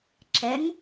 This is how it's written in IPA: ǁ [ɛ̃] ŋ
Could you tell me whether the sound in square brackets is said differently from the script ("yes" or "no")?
yes